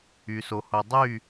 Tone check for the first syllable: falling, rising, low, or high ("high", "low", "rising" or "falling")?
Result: low